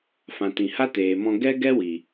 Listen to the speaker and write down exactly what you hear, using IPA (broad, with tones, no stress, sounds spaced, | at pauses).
f ã˨ t ĩ˨ h a˦ t eː˨ m ɔ̃˧ ɡ ɛ˦ ɡ ɛ˦ w i˨